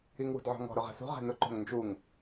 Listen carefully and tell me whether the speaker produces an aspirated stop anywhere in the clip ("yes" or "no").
no